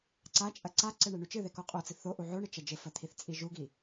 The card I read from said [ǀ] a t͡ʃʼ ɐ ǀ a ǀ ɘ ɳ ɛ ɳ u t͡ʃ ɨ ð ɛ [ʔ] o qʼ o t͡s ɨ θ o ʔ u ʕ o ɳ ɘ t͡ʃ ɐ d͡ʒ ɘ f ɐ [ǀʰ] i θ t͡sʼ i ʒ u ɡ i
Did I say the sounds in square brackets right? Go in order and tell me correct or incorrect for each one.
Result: correct, incorrect, incorrect

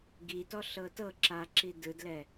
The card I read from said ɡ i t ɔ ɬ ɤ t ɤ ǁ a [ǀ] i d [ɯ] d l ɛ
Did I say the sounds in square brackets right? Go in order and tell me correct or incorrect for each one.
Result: incorrect, correct

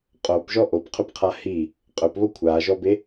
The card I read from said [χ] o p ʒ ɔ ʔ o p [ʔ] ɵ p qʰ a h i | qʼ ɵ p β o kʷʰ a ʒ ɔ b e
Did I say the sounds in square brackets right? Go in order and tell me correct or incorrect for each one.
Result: incorrect, incorrect

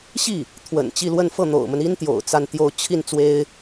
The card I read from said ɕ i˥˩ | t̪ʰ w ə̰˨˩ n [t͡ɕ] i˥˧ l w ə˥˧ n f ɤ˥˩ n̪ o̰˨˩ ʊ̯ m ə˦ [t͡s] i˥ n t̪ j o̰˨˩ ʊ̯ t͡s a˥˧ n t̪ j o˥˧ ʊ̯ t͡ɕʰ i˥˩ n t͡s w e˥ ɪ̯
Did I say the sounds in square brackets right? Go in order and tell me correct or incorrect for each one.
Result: correct, incorrect

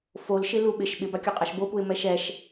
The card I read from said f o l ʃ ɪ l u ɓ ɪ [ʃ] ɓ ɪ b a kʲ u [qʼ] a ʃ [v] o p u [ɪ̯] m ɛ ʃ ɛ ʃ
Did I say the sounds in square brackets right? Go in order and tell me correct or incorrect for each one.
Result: correct, correct, incorrect, correct

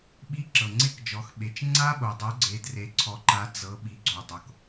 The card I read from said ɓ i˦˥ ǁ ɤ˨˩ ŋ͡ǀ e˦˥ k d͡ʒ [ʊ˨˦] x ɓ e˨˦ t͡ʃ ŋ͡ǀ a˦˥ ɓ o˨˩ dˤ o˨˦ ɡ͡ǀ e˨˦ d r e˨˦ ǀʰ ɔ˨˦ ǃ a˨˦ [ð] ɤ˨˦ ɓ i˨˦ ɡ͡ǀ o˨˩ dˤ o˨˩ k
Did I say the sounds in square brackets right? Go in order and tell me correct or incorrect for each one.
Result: incorrect, incorrect

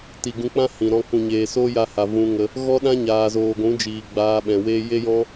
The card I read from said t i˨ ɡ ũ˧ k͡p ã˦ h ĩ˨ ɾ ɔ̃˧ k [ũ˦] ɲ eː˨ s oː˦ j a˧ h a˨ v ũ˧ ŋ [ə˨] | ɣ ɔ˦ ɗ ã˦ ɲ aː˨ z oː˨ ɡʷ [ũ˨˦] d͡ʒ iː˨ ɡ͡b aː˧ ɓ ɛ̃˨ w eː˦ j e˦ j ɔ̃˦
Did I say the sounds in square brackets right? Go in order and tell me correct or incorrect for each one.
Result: incorrect, incorrect, correct

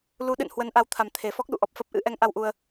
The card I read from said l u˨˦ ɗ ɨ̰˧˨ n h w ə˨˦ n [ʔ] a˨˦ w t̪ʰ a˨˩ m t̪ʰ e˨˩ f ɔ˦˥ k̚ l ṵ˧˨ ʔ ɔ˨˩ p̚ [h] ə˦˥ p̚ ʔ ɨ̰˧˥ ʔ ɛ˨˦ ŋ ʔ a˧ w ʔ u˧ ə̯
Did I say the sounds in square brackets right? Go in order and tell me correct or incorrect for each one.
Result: correct, incorrect

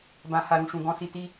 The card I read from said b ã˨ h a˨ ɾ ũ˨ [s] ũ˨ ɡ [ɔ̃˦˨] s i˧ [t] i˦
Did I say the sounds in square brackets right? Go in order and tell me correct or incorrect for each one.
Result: incorrect, incorrect, correct

